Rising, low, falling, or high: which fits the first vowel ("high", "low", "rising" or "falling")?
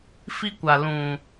high